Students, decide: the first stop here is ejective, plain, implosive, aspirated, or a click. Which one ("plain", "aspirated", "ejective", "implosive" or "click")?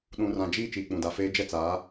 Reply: implosive